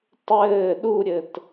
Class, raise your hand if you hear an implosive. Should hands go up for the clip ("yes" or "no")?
yes